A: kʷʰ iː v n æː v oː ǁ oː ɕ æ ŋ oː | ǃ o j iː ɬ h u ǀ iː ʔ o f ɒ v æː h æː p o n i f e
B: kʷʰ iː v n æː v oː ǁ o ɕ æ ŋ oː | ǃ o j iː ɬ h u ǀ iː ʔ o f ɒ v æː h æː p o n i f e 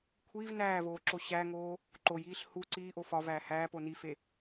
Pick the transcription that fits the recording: B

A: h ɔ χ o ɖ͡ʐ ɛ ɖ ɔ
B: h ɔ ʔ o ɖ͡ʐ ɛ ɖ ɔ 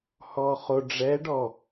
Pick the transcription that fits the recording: A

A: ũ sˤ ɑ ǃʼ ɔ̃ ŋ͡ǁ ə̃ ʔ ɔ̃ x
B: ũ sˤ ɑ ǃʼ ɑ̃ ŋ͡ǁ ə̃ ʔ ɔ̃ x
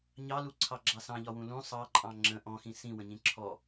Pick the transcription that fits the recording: B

